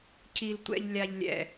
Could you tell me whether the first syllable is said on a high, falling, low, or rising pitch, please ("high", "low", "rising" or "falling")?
low